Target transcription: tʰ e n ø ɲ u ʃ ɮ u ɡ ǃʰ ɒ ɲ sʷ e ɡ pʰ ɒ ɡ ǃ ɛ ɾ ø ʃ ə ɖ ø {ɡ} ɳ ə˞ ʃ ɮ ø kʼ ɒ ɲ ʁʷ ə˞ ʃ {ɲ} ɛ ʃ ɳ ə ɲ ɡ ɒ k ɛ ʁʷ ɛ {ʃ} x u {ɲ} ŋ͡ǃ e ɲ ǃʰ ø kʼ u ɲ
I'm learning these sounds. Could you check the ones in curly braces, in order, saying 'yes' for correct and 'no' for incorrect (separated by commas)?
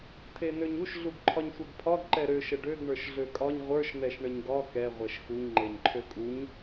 yes, no, yes, yes